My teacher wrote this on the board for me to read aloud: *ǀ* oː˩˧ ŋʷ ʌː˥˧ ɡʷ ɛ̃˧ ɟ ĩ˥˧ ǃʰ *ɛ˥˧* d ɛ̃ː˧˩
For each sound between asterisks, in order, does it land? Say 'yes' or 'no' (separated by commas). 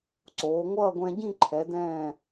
yes, no